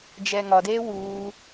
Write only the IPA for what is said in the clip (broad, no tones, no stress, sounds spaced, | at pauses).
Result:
d͡ʒ ɛː ŋ ɒ d eː w uː